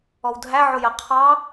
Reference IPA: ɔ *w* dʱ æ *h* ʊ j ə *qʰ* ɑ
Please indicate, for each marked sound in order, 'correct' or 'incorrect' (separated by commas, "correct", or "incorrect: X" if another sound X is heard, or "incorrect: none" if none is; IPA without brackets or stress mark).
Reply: correct, incorrect: ʕ, correct